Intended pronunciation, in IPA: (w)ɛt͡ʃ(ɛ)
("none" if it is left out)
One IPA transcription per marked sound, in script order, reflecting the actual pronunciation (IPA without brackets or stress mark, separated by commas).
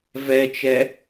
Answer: v, ɛ